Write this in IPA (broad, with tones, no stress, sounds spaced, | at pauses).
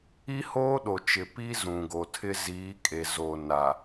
i˦ h oː˦ ɗ o˨ t͡ʃ ɪ˨ p i˦ z ũ˨ ɡ o˨ tʰ ɪ˦ z iː˨˦ kʼ e˨ z o˨ n a˨